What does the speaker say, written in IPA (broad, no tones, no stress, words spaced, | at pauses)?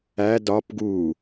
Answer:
æ dɒp ɡu